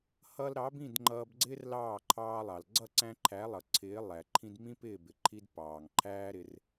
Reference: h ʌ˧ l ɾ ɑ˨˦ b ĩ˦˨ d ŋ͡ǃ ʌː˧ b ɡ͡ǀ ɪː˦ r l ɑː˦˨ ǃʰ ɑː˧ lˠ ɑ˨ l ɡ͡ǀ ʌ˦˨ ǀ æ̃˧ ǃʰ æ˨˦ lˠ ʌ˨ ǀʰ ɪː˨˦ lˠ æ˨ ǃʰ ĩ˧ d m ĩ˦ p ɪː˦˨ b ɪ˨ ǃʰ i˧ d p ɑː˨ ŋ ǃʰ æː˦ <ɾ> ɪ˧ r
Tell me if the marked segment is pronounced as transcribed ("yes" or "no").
yes